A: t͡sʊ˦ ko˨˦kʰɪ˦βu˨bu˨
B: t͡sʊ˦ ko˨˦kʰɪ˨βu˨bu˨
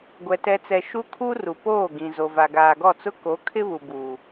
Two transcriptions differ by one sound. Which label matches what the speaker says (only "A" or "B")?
A